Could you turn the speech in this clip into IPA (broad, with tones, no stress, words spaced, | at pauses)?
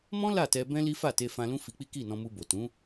mɔ̃˦ la˦˨tɛ˧ bɛ̃˦li˦ fa˦˨te˧fã˧ lũ˦fi˧k͡pi˦ ki˦˨nɔ̃˧mu˧bo˨ tũ˨˦